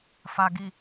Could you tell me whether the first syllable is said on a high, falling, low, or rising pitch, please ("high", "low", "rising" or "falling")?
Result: low